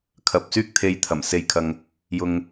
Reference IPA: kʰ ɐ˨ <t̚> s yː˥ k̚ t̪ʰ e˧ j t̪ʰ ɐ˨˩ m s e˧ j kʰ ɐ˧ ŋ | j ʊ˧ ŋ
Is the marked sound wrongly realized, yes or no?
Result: yes